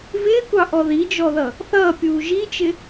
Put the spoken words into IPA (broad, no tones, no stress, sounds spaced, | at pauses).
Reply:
v ɪː kʷ ɑ ʔ ɔ ð i d͡ʒ ɔ ð ʌ | θ ʌː pʲ uː ʒ i t͡ʃ ɪ